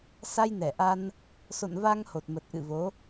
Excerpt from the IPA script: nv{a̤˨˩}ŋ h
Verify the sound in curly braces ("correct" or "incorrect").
incorrect